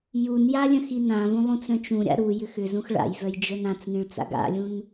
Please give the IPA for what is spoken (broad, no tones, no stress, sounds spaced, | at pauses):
j u n j a lʲ œ̃ x i n ã v ũ lˠ ũ t͡s œ̃ t͡ʃ ũ ɾʲ a̰ ɾ u j ʏ x ʏ z ũ x ɭ a̰ j v œ j d͡ʒ œ n ã t͡s ŋ ĩ ɭ t͡s a̰ ɡ a̰ lʲ ũ n